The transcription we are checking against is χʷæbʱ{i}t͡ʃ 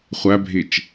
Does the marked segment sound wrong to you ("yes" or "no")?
no